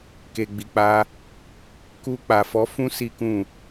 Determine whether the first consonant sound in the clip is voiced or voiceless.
voiceless